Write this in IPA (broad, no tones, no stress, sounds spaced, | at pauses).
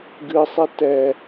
ɡ ɨ sˤ e t ɛ